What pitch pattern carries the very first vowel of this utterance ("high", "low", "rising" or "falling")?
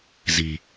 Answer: low